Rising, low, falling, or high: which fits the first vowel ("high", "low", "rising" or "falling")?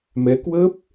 rising